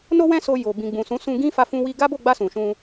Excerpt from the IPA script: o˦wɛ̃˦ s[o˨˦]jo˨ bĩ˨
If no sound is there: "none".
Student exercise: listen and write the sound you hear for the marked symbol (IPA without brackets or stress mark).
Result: o˧